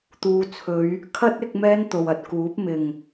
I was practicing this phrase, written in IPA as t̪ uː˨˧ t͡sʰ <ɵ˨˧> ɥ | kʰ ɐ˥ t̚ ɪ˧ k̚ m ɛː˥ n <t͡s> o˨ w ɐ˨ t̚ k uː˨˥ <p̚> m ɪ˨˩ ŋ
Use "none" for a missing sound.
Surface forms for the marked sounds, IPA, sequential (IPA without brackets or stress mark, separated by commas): ɵ˨˧, t̪, p̚